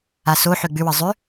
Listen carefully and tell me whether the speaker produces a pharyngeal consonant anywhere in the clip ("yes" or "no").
yes